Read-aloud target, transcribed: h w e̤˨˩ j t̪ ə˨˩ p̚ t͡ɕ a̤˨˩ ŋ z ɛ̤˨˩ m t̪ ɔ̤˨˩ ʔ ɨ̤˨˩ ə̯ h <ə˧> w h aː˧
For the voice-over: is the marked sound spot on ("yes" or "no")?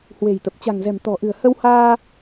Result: yes